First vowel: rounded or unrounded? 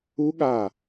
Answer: rounded